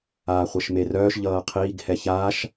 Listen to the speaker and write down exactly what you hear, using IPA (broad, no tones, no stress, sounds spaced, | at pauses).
aː χʷ ɛ ʃ m e r œː ʃ ʎ ʌː qʰ iː ɡ h ɛ ç aː ʃ